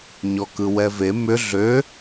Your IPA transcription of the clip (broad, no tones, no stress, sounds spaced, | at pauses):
ɲ ɔ k ɯ w ɛ v e m ʏ ɮ ø